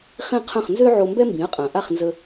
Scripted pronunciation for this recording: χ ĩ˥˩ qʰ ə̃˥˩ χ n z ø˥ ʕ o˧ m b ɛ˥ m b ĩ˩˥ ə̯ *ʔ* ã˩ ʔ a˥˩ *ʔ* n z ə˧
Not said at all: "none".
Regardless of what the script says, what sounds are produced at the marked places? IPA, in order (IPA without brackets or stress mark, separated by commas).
qʼ, χ